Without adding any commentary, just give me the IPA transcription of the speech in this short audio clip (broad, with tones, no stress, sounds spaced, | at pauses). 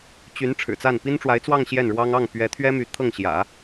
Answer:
t͡ɕ y˧˥ n ʈ͡ʂʰ ɻ̩˨˩ t͡s a˥˩ n p i˥ n ʈ͡ʂ w a˧˥ ɪ̯ t͡s w ɑ˥˧ ŋ ɕ j ɛ˥˩ n ɻ w ɑ˥ ŋ ɑ˥˩ ŋ p ɥ ɛ˧˥ t̪ʰ ɥ ɛ˥ m y˧˥ t̪ʰ ɤ˥˩ ŋ ɕ j ä̰˨˩˦